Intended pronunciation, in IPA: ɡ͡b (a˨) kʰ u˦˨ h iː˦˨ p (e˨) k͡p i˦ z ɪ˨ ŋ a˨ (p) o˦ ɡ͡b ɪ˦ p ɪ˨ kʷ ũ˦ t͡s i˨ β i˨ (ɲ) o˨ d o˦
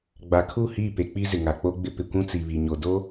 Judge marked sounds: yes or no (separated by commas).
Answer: yes, yes, no, yes